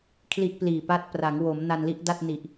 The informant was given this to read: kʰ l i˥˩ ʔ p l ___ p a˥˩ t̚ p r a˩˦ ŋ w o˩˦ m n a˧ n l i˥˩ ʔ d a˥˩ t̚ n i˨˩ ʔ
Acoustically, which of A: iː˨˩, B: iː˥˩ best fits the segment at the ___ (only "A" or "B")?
A